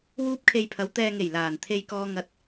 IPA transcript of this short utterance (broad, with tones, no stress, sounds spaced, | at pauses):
w uː˥ p̚ kʰ e˧ j pʰ ɐ˨˥ w t̪ ɛː˧ ŋ e˨˩ j l aː˨˩ n t̪ʰ e˥ j k ɔː˥ ŋ ɐ˥ t̚